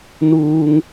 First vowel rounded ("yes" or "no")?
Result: yes